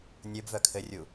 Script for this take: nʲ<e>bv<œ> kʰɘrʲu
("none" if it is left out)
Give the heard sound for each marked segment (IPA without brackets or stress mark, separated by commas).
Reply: ɘ, œ